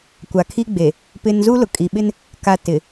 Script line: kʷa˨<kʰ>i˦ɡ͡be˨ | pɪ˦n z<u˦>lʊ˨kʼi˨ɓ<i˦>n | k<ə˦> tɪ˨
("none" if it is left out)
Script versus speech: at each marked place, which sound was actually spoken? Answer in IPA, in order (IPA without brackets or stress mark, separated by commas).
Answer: kʰ, u˦, ɪ˦, a˦